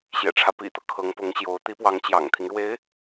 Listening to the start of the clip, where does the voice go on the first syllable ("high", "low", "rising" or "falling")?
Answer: low